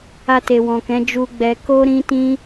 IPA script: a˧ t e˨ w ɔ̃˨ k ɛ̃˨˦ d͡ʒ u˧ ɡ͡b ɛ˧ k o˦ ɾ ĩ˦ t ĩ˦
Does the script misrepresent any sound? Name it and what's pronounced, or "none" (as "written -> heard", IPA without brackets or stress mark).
none